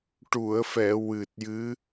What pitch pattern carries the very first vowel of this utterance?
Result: low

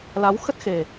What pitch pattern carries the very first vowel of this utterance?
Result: rising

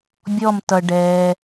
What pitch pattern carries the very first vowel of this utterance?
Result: falling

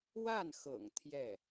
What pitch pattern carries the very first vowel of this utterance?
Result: falling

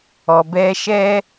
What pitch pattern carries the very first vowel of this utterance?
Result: low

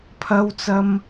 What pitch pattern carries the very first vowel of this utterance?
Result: high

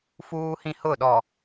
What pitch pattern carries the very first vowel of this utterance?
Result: high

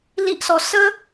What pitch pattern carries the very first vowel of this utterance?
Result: high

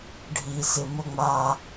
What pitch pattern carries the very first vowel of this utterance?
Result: low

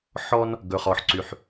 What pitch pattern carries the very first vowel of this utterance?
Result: high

